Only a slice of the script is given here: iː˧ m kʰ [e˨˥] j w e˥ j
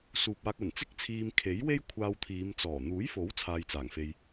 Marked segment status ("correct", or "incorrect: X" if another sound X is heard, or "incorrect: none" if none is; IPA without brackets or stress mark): correct